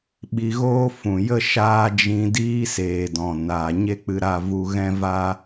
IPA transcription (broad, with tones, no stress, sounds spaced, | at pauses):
ɓ i˧ ɣ oː˦ f ũ˨ j ə˦ ʃ aː˦ d͡ʒ ĩ˧ d iː˦ s eː˨ d ɔ̃˨ n a˨ ɲ e˦ k͡p ɨ˧ ɾ a˦˨ v u˧ ɣ ɛ̃˦ v aː˦